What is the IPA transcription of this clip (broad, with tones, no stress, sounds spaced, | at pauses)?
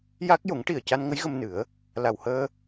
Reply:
j a˦˥ k̚ j o˨˩˦ ŋ ʈ i˨˩ ə̯ c a˧ n ŋ ə˧˥ j ɣ ə˧ m n ɨ˨˩˦ ə̯ | l a˨˩ w h əː˧